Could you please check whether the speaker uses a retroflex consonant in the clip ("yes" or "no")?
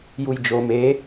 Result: no